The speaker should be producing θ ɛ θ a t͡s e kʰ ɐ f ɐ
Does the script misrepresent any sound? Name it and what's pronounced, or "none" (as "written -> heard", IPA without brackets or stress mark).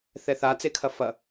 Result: none